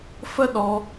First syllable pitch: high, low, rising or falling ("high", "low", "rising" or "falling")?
falling